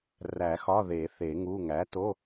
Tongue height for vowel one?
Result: low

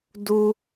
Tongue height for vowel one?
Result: high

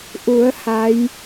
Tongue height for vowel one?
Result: high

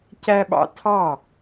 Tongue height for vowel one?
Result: low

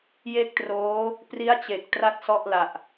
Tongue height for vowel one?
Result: mid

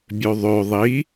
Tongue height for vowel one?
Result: mid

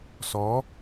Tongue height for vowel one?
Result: mid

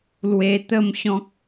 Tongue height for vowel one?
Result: mid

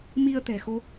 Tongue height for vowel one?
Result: high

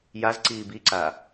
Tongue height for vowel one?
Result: low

